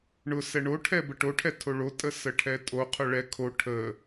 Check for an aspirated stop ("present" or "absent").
present